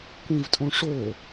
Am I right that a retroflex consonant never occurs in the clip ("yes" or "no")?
no